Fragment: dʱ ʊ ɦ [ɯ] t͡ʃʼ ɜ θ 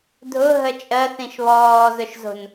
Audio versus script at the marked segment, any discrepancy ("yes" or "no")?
yes